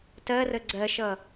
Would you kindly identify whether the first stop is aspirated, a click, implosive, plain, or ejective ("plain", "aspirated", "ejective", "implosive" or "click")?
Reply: plain